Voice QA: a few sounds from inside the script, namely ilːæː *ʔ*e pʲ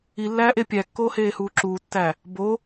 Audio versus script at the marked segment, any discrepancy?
no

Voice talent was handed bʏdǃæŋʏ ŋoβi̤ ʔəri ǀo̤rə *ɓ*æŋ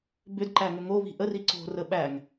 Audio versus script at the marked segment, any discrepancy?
no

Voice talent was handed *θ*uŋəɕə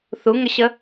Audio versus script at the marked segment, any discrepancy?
no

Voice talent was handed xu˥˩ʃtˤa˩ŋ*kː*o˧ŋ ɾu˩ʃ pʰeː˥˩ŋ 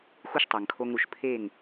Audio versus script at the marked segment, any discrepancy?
yes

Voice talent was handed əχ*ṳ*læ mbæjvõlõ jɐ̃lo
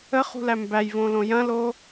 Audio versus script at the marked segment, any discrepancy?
no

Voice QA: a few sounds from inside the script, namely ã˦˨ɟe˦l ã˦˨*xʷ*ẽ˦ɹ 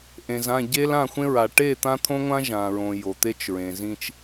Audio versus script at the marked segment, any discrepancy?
no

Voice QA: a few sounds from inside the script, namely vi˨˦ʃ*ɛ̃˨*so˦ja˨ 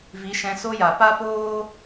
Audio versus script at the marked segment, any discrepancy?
yes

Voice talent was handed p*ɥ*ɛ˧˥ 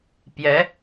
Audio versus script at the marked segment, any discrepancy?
yes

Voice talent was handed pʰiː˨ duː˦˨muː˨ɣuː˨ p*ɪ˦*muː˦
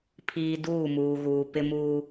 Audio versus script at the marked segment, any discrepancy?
no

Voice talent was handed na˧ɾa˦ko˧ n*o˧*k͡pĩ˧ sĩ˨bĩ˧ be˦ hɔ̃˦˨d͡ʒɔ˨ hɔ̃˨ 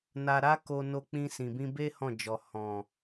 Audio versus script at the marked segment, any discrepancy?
no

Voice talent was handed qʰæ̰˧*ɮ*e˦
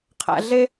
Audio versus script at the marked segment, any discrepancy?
no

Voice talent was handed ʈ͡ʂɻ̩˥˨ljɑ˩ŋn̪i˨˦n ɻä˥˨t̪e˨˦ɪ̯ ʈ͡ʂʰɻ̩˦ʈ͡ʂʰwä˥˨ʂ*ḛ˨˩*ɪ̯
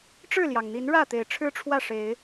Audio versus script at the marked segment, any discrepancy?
yes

